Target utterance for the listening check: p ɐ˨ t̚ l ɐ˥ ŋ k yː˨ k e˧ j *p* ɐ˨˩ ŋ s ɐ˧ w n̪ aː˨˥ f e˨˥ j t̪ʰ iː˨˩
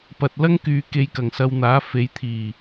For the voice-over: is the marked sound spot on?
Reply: no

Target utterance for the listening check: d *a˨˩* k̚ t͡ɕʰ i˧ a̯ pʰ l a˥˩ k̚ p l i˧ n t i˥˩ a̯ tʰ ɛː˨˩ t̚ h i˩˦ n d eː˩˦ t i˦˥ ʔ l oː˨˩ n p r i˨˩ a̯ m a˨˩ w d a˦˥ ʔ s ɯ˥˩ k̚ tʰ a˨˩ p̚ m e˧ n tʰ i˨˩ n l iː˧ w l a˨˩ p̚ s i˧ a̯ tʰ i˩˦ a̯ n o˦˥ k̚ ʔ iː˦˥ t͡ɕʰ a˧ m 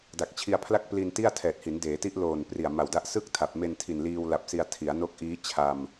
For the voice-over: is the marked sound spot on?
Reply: yes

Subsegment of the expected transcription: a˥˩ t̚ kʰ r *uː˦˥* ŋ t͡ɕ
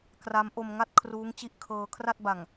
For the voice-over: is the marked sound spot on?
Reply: yes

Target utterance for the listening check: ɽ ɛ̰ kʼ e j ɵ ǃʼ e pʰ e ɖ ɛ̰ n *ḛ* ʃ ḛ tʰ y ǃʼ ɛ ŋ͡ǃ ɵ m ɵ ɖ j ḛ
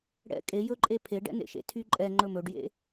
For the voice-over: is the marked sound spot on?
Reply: yes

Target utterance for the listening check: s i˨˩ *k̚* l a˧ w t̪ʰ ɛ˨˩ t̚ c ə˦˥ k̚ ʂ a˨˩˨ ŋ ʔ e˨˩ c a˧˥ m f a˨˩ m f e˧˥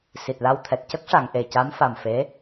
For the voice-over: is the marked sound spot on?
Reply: no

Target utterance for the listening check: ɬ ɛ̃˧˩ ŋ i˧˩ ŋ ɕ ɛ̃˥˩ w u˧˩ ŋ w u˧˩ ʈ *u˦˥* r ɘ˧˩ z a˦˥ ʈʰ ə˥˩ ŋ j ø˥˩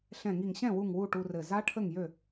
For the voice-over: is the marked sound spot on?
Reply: no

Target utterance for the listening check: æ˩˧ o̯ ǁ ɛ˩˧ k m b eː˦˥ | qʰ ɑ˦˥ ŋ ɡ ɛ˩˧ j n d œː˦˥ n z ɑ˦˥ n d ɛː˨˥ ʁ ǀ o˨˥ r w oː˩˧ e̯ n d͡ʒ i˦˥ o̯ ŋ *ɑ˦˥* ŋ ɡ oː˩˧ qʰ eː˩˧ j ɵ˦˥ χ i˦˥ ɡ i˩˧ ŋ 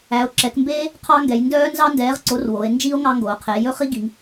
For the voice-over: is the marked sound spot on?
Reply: yes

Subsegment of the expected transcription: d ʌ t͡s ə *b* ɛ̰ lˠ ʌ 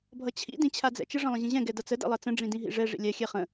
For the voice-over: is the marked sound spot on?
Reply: no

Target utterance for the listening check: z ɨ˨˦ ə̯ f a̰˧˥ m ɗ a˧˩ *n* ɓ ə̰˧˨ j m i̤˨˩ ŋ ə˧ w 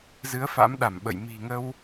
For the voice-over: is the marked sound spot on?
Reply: no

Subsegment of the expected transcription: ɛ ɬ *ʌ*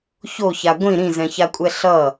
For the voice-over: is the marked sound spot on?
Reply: yes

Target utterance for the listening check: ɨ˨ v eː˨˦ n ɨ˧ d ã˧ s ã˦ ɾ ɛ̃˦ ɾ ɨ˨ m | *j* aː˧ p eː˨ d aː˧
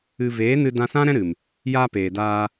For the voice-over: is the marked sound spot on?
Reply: yes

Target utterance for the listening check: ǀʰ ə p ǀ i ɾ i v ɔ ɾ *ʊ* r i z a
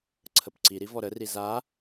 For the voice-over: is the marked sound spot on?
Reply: no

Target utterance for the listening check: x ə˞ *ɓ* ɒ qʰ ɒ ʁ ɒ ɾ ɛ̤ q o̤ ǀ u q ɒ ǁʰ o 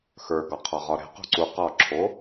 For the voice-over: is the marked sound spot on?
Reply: no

